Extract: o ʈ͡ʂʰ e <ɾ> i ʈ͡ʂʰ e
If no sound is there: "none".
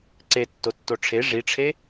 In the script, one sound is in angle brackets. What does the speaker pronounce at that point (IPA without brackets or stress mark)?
ʐ